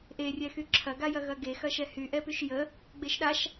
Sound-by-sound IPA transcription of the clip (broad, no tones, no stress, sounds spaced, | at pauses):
ʔ e rʲ ɛ x y ǁʰ ɐ ɡ a j ɐ ɣ ɐ ɡ e x ɐ ʃ ɛ h y ʔ ɛ p y ʃ j ə | ɡ͡b e ʃ ɗ a ʃ